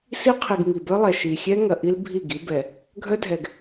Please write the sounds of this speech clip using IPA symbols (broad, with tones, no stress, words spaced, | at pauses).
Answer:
si˦qʰi˨ɡ ŋi˨bœ˦lˠɛ˨ ʃi˨xʲɛ˦ ŋɐ˨ʔi˦l bʱi˦˨ɡi˦bɛ˨ | ɡʱœ˦dʱɛ˨ɡ